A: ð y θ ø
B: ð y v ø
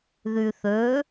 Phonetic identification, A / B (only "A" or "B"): A